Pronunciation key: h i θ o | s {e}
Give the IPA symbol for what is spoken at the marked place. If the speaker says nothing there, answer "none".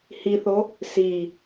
i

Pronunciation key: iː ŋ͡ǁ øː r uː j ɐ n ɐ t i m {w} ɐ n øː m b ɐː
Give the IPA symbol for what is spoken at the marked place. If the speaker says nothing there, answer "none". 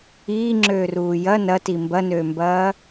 b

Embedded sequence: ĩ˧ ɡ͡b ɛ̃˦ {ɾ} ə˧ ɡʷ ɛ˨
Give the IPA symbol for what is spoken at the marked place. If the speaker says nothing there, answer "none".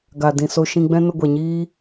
n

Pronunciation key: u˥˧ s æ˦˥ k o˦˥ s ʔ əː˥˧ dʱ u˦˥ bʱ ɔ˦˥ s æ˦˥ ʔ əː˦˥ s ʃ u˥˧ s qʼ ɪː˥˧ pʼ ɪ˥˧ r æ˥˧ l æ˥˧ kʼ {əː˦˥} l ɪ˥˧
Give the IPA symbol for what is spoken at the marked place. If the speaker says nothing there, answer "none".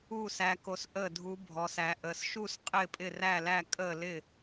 əː˥˧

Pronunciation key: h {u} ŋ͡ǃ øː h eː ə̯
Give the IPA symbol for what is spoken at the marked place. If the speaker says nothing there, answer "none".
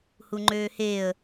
u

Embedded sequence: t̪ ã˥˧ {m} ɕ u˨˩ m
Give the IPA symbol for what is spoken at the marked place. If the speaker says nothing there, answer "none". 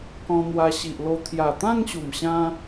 ŋ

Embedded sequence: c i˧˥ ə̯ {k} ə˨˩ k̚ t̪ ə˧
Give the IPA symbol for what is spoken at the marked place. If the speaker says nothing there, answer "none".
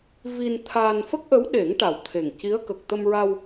k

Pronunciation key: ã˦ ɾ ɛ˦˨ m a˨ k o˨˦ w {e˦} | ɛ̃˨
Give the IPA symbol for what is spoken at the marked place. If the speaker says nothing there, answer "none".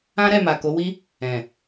i˦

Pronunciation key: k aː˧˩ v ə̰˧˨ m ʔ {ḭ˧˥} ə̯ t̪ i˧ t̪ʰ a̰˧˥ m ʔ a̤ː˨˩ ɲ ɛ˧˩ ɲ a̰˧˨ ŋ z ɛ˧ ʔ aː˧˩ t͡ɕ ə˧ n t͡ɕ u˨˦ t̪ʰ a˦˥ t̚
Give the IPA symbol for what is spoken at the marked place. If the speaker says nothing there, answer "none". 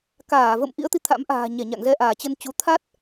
ḭ˧˥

